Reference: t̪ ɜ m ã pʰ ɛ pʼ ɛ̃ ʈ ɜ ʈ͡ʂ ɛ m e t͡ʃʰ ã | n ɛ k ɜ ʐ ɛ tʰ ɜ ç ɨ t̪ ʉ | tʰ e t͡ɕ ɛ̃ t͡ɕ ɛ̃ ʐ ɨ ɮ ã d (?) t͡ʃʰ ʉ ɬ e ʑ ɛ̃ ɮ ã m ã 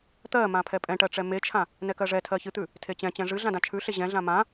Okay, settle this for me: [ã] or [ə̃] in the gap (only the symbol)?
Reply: ã